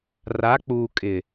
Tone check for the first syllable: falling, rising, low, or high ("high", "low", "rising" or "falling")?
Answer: rising